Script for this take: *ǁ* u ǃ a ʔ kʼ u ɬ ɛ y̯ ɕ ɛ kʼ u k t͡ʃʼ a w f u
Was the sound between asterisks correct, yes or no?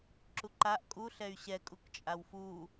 yes